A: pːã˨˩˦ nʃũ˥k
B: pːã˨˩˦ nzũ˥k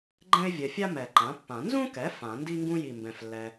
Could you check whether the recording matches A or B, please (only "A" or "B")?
B